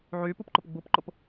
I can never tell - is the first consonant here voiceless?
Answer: no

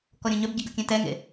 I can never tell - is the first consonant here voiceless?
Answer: yes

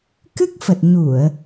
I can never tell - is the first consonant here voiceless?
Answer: yes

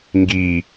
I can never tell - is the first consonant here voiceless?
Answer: no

